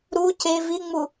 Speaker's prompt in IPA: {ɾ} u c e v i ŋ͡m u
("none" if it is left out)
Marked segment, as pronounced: ɾ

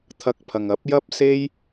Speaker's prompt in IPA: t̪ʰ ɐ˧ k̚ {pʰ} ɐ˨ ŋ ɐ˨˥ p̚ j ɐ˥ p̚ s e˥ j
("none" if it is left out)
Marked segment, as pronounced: pʰ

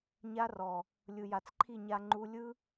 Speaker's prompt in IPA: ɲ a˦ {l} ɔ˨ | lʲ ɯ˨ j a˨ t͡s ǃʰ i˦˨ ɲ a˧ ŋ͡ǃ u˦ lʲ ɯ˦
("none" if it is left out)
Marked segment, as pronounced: r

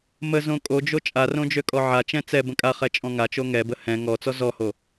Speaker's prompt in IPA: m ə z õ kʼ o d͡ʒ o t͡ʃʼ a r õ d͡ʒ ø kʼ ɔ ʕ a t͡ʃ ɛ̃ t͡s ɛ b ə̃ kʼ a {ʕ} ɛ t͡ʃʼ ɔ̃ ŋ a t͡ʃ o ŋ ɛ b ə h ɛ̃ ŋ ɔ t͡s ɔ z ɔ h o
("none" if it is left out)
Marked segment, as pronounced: χ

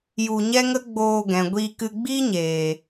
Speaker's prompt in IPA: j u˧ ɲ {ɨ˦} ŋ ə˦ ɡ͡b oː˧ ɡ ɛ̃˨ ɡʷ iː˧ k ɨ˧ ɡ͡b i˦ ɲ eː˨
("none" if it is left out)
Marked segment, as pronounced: ɛ˦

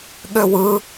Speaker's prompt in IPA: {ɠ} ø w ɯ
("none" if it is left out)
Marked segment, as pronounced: ɠ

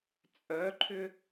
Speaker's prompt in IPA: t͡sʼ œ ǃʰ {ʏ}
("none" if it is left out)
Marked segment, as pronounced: ʏ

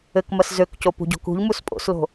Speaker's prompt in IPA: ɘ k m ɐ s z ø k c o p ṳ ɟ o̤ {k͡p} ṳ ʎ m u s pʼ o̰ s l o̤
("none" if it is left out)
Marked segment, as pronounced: k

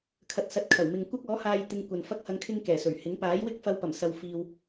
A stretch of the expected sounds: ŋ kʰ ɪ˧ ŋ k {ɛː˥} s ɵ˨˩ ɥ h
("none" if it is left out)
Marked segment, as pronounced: ɛː˨˩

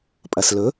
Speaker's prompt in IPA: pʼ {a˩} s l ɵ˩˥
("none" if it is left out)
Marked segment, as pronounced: ɐ˩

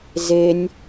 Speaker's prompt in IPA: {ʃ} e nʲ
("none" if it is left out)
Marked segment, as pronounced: z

